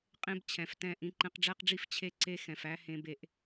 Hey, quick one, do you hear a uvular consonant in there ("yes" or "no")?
yes